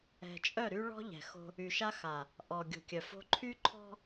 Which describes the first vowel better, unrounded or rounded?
unrounded